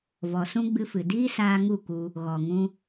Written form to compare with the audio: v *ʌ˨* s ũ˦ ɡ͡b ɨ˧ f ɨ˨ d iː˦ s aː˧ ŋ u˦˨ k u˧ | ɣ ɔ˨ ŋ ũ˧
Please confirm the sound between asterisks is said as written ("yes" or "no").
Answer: no